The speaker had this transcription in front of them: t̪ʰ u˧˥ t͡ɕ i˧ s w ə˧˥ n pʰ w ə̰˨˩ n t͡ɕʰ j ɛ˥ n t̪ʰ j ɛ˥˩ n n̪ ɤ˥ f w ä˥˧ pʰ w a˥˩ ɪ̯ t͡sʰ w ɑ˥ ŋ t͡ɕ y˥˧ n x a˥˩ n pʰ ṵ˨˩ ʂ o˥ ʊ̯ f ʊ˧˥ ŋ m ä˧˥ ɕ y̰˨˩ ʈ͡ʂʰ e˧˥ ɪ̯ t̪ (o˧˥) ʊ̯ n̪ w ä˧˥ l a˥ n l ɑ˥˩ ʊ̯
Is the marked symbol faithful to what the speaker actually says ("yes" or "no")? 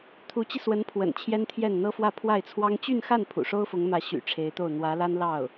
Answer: no